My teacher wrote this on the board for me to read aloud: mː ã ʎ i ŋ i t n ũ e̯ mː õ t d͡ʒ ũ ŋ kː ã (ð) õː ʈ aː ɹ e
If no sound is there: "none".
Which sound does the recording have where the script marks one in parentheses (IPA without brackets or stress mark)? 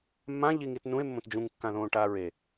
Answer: ð